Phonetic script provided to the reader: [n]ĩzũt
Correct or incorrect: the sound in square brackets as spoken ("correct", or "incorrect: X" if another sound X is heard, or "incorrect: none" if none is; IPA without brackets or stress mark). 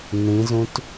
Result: correct